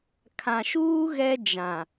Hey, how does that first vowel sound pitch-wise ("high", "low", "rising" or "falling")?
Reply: low